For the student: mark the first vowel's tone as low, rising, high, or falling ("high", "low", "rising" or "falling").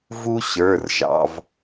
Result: high